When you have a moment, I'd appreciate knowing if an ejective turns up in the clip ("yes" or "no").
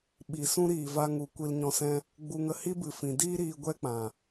no